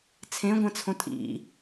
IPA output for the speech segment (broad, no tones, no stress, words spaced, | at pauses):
t͡sʰẽɡʷɛ̃t͡sʰõ tʼḭ